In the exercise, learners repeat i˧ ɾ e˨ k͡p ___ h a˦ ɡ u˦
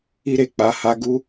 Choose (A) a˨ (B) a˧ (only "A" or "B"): B